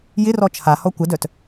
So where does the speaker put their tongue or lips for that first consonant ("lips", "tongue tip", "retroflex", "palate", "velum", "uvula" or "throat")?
palate